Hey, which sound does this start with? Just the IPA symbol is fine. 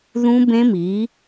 ð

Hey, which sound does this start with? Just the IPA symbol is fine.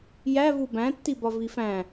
j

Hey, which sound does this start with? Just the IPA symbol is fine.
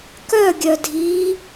k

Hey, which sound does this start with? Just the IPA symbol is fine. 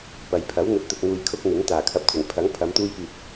p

